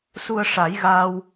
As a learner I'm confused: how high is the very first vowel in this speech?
high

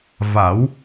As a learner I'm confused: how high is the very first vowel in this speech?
low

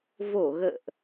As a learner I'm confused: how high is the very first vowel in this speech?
mid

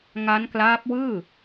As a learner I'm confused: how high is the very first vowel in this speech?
low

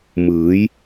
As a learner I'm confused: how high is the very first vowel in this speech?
high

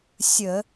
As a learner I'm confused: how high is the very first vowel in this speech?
mid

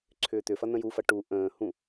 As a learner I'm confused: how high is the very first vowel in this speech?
high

